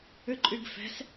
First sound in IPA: ʏ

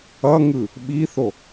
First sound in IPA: ʌ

